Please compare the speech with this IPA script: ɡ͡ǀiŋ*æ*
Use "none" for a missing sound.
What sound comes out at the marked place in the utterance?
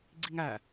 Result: æ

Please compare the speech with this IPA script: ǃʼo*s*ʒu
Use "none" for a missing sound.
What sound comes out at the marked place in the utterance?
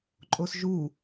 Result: s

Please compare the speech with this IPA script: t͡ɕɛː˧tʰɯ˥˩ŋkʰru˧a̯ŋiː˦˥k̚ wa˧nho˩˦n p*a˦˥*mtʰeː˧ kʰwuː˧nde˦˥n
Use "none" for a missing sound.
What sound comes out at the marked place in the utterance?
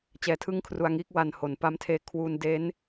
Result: a˦˥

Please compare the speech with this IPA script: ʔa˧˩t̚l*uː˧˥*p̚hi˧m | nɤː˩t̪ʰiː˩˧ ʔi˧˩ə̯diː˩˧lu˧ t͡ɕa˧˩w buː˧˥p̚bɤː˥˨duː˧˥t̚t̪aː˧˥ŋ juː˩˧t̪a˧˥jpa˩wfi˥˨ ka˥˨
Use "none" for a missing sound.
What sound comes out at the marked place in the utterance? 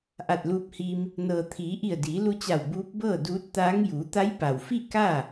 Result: uː˧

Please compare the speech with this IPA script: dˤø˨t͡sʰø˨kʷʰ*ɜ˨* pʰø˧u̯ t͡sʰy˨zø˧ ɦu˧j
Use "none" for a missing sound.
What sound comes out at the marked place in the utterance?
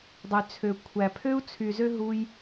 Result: æ˨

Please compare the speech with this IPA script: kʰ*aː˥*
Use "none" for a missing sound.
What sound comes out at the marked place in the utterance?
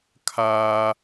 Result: aː˥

